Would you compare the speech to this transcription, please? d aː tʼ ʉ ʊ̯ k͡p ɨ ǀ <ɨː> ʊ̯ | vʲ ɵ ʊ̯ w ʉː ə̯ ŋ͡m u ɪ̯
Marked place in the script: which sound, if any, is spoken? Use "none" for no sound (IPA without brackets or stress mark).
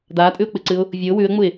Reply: ɨː